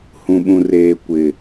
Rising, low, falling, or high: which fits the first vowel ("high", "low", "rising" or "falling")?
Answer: low